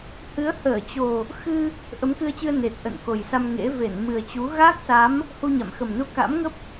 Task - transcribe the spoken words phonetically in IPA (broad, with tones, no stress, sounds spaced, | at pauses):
h ɨ˨˦ ə̯ h əː˧˩ t͡ɕ o˨˩ | x ɨ˧ | ʔ ə˨˦ m k ɨ˧ ə̯ t͡ɕ ɨ˧ ə̯ n e˨˩ t̚ ʔ ə̰˧˨ n k o˨˩ j s a˧ m ŋ ḛ˧˥ v e˧˩ n m ɨ˨˩ ə̯ t͡ɕ u˨˦ ɣ a˦˥ k̚ s a˨˦ m | h u˧ ɲ a̰˧˨ m x ə˨˩ m n u˧ k a̰˧˥ m ŋ ə˦˥ p̚